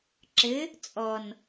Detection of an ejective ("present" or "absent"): present